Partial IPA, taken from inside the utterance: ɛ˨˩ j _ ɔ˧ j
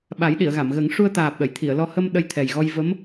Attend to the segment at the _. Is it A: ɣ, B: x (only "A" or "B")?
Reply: A